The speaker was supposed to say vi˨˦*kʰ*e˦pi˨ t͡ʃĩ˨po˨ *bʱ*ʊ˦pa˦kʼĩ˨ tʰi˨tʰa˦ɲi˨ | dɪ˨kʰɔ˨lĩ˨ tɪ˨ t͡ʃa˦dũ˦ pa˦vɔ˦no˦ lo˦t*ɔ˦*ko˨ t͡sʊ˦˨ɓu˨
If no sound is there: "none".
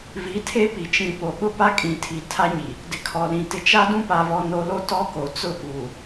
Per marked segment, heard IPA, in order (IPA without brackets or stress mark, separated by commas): tʰ, ɓ, ɔ˦